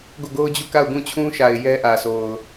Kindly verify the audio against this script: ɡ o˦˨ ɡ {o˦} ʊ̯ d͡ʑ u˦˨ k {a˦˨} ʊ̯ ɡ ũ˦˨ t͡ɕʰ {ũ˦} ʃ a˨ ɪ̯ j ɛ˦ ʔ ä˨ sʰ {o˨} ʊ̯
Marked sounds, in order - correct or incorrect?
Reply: correct, correct, correct, correct

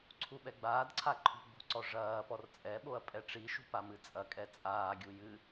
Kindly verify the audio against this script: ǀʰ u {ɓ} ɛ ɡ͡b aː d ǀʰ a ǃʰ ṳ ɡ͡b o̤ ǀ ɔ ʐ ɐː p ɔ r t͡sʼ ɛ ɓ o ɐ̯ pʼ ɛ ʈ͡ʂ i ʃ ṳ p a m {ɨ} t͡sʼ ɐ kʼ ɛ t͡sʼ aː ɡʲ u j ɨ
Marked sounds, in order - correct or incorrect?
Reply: correct, correct

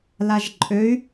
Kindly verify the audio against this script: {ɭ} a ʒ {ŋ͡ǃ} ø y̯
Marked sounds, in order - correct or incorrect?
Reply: incorrect: l, incorrect: ǃʼ

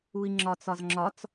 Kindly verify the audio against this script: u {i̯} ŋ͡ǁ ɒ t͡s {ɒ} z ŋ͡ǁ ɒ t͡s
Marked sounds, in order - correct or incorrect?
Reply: correct, correct

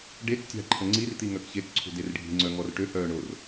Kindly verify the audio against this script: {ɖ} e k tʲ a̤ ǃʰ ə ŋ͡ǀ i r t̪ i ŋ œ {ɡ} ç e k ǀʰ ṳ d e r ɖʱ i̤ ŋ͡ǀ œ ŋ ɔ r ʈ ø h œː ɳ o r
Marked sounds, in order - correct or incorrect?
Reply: correct, incorrect: k

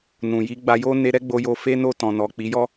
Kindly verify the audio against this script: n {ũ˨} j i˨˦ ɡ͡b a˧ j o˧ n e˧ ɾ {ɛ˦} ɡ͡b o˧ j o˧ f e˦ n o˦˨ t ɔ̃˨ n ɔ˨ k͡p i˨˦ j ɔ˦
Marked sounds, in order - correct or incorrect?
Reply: correct, correct

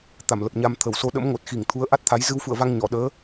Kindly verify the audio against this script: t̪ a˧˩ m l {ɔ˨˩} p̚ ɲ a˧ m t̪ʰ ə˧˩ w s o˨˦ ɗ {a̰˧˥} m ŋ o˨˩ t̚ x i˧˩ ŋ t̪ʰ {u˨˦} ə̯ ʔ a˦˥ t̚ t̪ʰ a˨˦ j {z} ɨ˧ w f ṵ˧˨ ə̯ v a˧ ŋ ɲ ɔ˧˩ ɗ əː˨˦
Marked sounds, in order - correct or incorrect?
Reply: incorrect: ə˨˩, incorrect: ə̰˧˥, correct, correct

